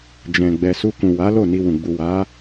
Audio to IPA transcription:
d͡ʒ ɛ̃˨ ɡ͡b ɛ˨ s u˧ k ũ˨ w a˨˦ l o˦˨ n i˧ w ũ˨ ɡ͡b u˨ w a˨˦

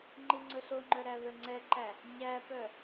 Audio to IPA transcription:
ŋ͡ǃ i ŋ͡ǀ ɵ ɬ o ŋ͡ǃ œ ɾ æ v ɛ ŋ͡ǀ ɛ ǃ æ | ɲ æ p œ

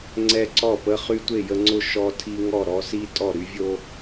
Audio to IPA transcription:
ŋ͡ǀ ɛ˦ ǀ ɔ˥˨ p ə˦ χ y˦ tʷ e˥˨ j ə˦ ŋ͡ǀ ʊ˥˨ ʃ ɔ˦ tʰ i˦ ŋ ɔ˥˨ ɾ ɔ˦ s i˦ tʼ ɔ˥˨ ɾ y˦ vʲ o˦

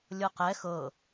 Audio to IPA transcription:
lʲ ɤ q ɛ x ɤ

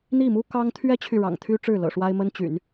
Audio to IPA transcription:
n̪ i˥˩ m u˥ k ɑ˥ ŋ t̪ʰ ɥ ɛ˥ t͡ɕʰ y˨ ɻ ɑ̰˨˩ ŋ t̪ʰ y˥ ʈ͡ʂ ɻ̩˥˩ l ɤ̰˨˩ ʂ w a˥ ɪ̯ m ə˥ n t͡ɕ y̰˨˩˦ n

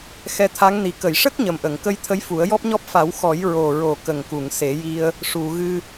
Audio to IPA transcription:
x ɛ˧˥ t̪ʰ a˧˥ ŋ n i˨˩ k ə˨˩˨ j ʂ ə˦˥ k̚ ɲ ə˨˩ m ʔ ə˨˩˨ ŋ k ə˧ j t̪ʰ ə˧˥ j f u˨˩˦ ə̯ j ɔ˦˥ p̚ ɲ ɔ˦˥ p̚ f a˨˩˦ w x ɔ˨˩˦ j ɹ o˨˩ ɹ o˨˩ k ə˨˩ ŋ k u˨˩˨ ŋ s e˨˩˦ j i˧ ə̯ | ʂ u˨˩˨ ɣ ɨ˧

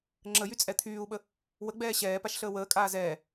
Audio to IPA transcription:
ŋ͡ǁ ə j y t͡sʼ ɛ t̪ʰ yː u̯ ɓ ə | w ə ɡ͡b ɛː ɕ ɛː p a ʃ ɬ əː w əː kʼ aː z ɛː

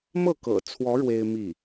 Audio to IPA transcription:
m ɤ˥˩ k ɤ̰˨˩ t͡sʰ w ɔ˧˥ ɻ w e˥ ɪ̯ m i˥˩

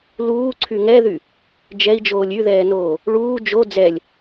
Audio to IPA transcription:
l uː ǀʰ y ŋ ɛ ð y | d͡ʒ ɛ i̯ d͡ʒ oː lʲ y ð ɛː n oː | ɭ uː d͡ʒ o d͡z ɛ lʲ

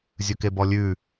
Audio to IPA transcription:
zʲ ɵ k e b ɔ lʲ ʉ

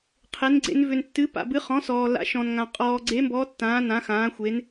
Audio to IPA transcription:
qʰ e˨˦ n ɡ͡ǀ ḛ˨˦ n v ʏ˨ n tː ɨ˨˦ p a̰˨ b ɨ˨˦ χ ɔ̃˨˦ s ɔː˨ l a̰˨˦ ʃ ɔ̃˨ n ŋ ã˨ qʼ ɔː˨ ɡ͡ǀ e˨˦ m b ɔ˨˦ tː ãː˨˦ n ã˨˦ x ãː˨˦ xʷ e˨˦ n

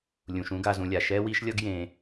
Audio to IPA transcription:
lʲ ũ˩ ʃ ũ˦ ɡ a˨ z ũ˨ lʲ a˩ ʃ ɛ˥ w i˥ ʃ lʲ ʌ˥ ɡ j ẽ˨

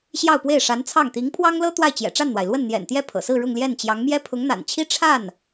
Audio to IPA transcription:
ɕ j ɑ˥˧ ʊ̯ p w e˥˩ ɪ̯ ʂ a˧˥ n t͡sʰ ɑ˥˩ ŋ t̪ i˧˥ ŋ pʰ w ɑ˥ ŋ l ɤ˥ t̪ w a˥˩ ɪ̯ t͡ɕ j ɛ̰˨˩ ʈ͡ʂ a˥˩ n n̪ w a˩ ɪ̯ l w ə˥˩ n n̪ j ɛ̰˨˩ n t̪ j ɛ˥˩ pʰ ɤ̰˨˩ s ɹ̩˥˧ ɻ ʊ˥˧ ŋ l j ɛ˥˩ n t͡ɕ j ɑ˧˥ ŋ m j ɛ˥ pʰ ʊ˧˥ ŋ n̪ a̰˨˩ n t͡ɕʰ i˥ ʈ͡ʂʰ a˥˩ n

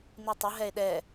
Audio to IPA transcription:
n i tˤ ə ɦ ɛ e̯ ɗ ɛ

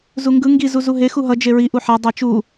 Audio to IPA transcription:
z u ŋ ɡ ɯ ŋ ɡ i z u z u ɦ e x u ɦ ʌ d͡ʒ e ɹ i ʔ u ħ a dˤ a t͡ʃ u

